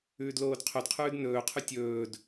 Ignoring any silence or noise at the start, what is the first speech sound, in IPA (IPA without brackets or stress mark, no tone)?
ʉː